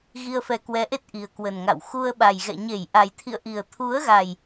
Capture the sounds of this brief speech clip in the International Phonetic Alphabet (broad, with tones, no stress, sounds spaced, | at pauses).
ɣ i˧ ə̯ f ɛ˨˦ k w ɛ˨˦ ʔ e˦˥ t̚ ʔ i˨˩ ə̯ k w ə˨˩ n ŋ a̰˧˨ w x u˧ ə̯ ɓ a˨˩ j ɣ ɛ̰˧˨ ɲ e˧˩ j ʔ a˨˩ j t̪ʰ ḭ˧˨ ə̯ ʔ i˨˩ ə̯ t̪ʰ u˨˦ ə̯ ɣ a˨˩ j